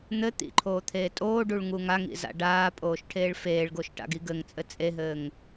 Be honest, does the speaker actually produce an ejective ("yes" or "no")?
yes